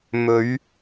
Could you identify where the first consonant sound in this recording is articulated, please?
labial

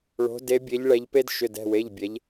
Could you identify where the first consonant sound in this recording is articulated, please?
retroflex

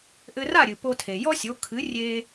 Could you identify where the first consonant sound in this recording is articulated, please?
glottal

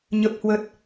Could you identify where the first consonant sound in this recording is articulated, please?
palatal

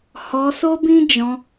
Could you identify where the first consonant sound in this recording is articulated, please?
glottal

